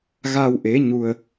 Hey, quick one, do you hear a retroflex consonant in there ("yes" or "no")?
no